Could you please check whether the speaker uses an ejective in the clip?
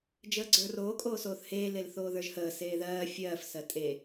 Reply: yes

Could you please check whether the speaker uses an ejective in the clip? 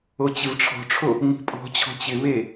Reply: yes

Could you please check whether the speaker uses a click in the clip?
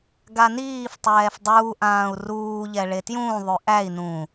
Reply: no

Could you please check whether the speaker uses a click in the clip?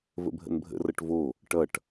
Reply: no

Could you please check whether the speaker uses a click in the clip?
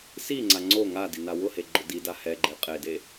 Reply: yes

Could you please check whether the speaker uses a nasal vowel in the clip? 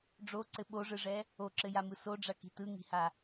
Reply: no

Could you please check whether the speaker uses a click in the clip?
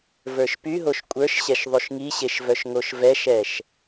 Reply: no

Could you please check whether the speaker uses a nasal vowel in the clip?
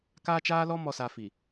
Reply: no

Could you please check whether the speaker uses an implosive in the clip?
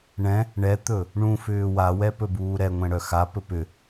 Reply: no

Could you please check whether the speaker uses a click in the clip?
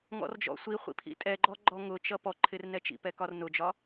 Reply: yes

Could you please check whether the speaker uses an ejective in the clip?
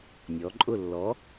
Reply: yes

